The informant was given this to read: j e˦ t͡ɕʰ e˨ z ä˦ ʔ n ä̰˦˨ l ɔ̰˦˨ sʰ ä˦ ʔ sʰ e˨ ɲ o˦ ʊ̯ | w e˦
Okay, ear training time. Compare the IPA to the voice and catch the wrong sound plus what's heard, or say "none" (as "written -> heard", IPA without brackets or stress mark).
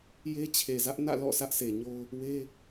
none